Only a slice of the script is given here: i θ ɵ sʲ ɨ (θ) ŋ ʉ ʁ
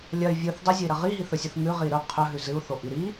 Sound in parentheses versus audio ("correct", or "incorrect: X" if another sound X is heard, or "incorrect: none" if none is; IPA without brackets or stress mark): correct